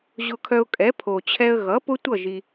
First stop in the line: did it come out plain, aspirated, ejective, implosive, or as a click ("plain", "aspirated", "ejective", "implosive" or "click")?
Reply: aspirated